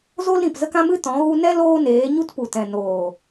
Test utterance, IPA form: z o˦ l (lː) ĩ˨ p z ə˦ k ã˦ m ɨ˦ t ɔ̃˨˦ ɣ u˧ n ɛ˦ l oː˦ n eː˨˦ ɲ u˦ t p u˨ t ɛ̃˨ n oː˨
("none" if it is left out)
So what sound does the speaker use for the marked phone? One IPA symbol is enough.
ɾ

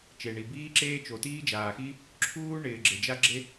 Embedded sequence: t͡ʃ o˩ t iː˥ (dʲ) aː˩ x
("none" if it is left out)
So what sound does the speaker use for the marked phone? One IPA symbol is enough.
d͡ʒ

